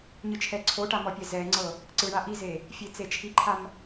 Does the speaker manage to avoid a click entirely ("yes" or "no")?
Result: no